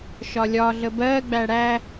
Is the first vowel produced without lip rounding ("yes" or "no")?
no